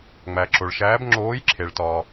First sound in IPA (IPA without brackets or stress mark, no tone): ŋ͡m